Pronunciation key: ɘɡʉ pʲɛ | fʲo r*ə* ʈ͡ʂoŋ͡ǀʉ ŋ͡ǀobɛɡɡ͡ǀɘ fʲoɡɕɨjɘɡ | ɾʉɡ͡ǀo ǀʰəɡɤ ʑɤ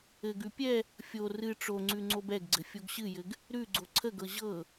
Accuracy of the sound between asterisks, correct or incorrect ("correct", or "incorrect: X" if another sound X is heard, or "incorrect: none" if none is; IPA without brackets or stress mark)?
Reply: incorrect: ɨ